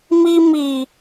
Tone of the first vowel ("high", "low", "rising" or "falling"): high